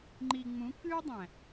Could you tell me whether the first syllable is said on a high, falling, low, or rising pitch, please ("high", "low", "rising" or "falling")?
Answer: low